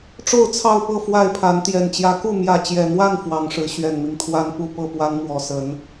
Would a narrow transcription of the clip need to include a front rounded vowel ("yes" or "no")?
no